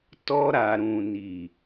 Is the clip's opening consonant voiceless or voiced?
voiceless